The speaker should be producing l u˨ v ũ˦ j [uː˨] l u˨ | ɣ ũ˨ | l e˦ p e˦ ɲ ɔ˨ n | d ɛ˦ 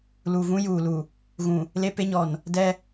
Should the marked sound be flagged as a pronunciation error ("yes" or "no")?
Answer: no